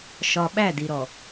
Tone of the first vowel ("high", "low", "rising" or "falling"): low